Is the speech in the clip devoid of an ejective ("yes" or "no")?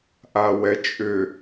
no